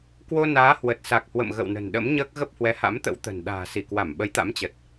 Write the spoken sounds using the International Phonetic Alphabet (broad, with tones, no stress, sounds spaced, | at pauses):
k w o˧ n aː˨˦ h w ə˨˩ t̚ s a˨˩ k̚ h w ə̰˧˨ m ɣ ə̰˧˨ w n ə̤˨˩ n ɗ ə̰˧˥ m ɲ əː˦˥ k̚ ɣ ə˦˥ p̚ h w ɛ˨˦ h a̰˧˥ m t̪ ə̰˧˥ w t̪ ə̤˨˩ n ɗ a̤ː˨˩ s i˧˩ k w a˧˩ m ɓ ə˨˦ j t̪ a̰˧˥ m t͡ɕ ə˨˩ t̚